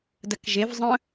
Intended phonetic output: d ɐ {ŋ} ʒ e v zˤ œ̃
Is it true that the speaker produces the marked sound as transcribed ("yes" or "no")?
no